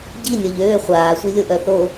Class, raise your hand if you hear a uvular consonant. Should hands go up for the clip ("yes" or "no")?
yes